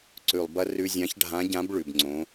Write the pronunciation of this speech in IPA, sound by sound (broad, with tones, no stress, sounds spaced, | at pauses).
ǀ ʉ˩ lˠ b ɐ˧ r ʉ˧ zʲ ã˧˥ ç ɖʱ ã˧˥ ɟ ã˧˥ b ɭ ʉ˩ b ŋ͡ǀ õ˩˧